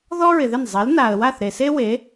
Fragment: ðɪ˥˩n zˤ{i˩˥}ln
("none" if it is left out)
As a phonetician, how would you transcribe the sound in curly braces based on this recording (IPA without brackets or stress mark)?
i˩˥